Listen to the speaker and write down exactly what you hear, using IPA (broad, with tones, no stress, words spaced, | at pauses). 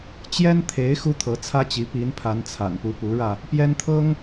t͡ɕjɛ˥nt̪ʰe˧˥ɪ̯ xu˥t̪ʰɤ˧˥t͡sʰä˥t͡ɕi˧˥ pi˧˥npʰa˧˥nt͡sʰa̰˨˩npu˧˥ pu˧˥ɻä˧ | pjɛ˥nt̪ʰɤ˥ŋ